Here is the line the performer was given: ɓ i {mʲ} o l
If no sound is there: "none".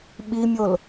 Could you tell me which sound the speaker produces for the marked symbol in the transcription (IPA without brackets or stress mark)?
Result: mʲ